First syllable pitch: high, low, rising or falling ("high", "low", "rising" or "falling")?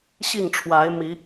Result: falling